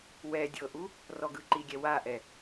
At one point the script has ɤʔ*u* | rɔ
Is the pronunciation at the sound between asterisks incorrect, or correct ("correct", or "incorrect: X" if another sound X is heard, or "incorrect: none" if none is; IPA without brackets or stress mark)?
correct